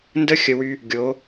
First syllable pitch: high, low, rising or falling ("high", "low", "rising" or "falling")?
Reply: high